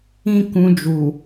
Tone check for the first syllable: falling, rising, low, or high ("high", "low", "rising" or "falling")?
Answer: high